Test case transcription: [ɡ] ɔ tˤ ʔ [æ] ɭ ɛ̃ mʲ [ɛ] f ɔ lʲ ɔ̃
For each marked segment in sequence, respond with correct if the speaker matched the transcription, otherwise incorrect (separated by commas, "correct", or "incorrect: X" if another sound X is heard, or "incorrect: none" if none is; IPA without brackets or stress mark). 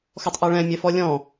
incorrect: x, correct, correct